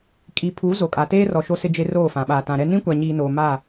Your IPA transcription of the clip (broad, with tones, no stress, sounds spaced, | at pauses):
kʼ i˨ pʰ u˨˦ z o˨ kʼ a˨ t eː˦ r ɔ˨ ʃ o˦ s ɪ˦ d͡ʒ e˦ r oː˦˨ f ã˨ ɓ aː˨ t ã˨ ɾ ɛ˦ n ĩ˦ kʷ a˨ ɲ iː˨ n oː˨ m a˦˨